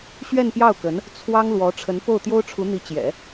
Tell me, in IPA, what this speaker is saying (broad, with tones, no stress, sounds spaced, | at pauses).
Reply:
ɕ ɥ ɛ˥˧ n p j ɑ˥˩ ʊ̯ k ə˧˥ n | t͡sʰ w ɑ˥ ŋ l w ɔ˧˥ ʈ͡ʂʰ ə˧˥ n p o˥˩ ʊ̯ t̪ j o˥ ʊ̯ ʈ͡ʂʰ u˧˥ n̪ i˧˥ t͡ɕ j ɛ̰˨˩˦